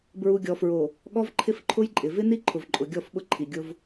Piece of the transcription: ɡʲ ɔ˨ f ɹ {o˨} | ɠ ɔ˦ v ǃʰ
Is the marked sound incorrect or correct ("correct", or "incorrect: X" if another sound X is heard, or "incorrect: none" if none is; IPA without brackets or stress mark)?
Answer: correct